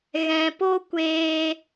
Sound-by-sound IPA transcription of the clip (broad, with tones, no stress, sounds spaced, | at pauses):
ɣ ɛ̃˨ p o˦ kʷ eː˧